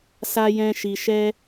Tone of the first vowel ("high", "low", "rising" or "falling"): high